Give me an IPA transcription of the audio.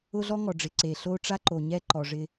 ʊ˦ɮɔ˦ŋɔ˨ɖ͡ʐɪ˨ ǀe˨ɬo˦ ʈ͡ʂa˦ǃo˨ɲɛ˦ ǃɔ˨ʐɪ˦

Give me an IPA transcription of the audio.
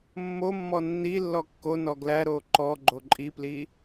mːomːɔ nːi lːɔkːonɔ ɡlæɾoː ǃɔ ɡ͡ǃoǃʼipli

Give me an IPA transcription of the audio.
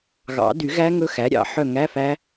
ɣɑ̰˨˩˦dy˨˩˦ɣæ˦˥ ŋɵ˦˥xæ˩˥ɾʲɑ̰˨˩˦ ħœ˦˨ŋæ˧˥˧fæ˦˥

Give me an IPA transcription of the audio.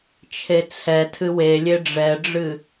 t͡ʃʰet͡sʰɛ tʰɨwelʲe ɖ͡ʐɛɖ͡ʐɨ

